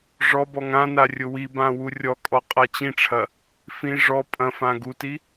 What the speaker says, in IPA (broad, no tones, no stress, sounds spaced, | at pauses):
ʐ ɔ b ɔ ŋ ã n a rʲ ʊ w i b ã w u rʲ ɔ kʼ ɔ qʼ a t͡ɕ ĩ ʈ͡ʂʰ ɐ | f ĩ ʐ ɔ pʼ ɐ̃ f ã ɡ u t i